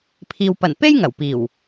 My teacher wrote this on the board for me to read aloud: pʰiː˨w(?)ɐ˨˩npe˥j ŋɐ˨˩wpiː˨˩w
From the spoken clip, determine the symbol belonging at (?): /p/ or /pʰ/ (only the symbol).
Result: p